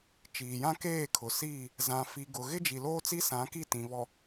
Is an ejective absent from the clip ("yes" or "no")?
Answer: yes